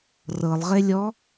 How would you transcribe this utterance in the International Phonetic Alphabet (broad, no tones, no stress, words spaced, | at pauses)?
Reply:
rɤlˠʁelʲɔ